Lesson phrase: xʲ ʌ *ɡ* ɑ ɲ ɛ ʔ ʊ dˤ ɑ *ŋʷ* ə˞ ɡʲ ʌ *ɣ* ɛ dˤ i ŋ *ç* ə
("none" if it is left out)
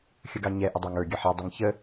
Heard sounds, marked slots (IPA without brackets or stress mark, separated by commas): ɡ, ŋ, ħ, ç